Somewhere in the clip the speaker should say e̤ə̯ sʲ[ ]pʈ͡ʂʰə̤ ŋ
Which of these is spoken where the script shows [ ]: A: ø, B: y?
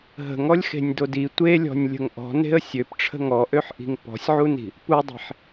A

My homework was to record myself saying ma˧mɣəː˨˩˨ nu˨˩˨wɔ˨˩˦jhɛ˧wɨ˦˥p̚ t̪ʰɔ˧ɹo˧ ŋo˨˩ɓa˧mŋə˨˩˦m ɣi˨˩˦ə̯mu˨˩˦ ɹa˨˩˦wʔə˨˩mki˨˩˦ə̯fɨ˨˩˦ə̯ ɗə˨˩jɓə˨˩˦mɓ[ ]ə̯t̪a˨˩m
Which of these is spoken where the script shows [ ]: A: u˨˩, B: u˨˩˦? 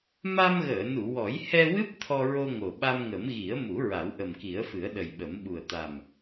A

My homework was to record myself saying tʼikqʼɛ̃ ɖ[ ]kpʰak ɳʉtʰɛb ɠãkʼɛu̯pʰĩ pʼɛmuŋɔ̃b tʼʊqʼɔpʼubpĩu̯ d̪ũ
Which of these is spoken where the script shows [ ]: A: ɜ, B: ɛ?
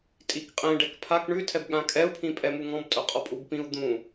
B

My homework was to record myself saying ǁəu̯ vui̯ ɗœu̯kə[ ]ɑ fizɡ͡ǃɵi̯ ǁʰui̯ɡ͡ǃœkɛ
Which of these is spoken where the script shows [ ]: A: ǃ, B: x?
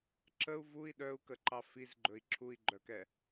A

